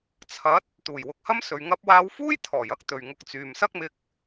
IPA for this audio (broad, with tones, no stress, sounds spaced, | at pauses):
t͡sʰ ɐ˨˥ t̚ | t̪ uː˨˩ j w ʊ˨˥ k̚ h ɐ˥ m s ɵ˨ ɥ ŋ ɐ˥ p̚ w aː˥ w f uː˥ j t̪ʰ ɔː˨˩ j ɐ˥ k̚ t̪ ɵ˨ ɥ ŋ ʊ˧ k̚ t͡s yː˨ m s ɐ˥ k̚ m ɪ˧ k̚